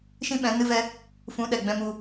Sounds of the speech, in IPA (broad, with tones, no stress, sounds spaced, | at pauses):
ʃ ĩ˦ ɓ ɛ̃˨˦ n ɨ˦ v ɛ˦ | f ũ˨˦ ɗ ɛ˨ ɡ͡b ɛ̃˧ m u˧